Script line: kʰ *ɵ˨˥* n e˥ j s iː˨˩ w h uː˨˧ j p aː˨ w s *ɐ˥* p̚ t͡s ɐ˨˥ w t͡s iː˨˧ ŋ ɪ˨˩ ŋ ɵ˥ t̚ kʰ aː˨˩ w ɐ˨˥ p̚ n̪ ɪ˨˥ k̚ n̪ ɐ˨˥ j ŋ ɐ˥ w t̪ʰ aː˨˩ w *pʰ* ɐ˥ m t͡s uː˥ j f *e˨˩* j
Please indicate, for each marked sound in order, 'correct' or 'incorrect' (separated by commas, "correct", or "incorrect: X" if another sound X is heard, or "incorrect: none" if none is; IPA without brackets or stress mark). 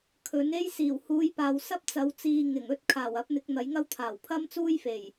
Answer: correct, correct, correct, correct